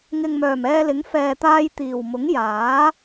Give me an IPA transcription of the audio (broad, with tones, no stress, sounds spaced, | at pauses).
ŋ ɪ˨ ŋ m œː˨˩ m ɛː˧ l ɪ˨˥ ŋ f ɛː˨ t̪ aː˧ j t̪ iː˨˩ w m ʊ˨˥ ŋ j aː˨˥